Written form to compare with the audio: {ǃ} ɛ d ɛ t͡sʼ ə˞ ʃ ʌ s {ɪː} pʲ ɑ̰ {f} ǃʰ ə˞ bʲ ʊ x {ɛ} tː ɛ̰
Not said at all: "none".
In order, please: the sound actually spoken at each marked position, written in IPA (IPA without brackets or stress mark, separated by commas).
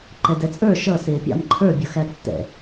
ǃ, ɪː, m, æ